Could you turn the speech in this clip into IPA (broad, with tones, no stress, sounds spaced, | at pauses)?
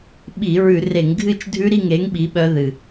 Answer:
ɓ i˧˩˧ ɹ ʉ˧˩˧ r e˧˩˧ ŋ ɡʱ ɨ˥˨ t͡ʃ dʱ ʉ˦˥ ɾ i˥˨ ŋ e˨˥ ŋ ɓ i˨˥ ɓ œ˦˥ ð ɨ˧˩